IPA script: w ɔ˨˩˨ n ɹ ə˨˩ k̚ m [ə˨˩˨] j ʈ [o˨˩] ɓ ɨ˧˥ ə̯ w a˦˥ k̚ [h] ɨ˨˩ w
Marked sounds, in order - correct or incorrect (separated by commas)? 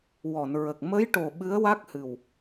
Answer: incorrect, correct, correct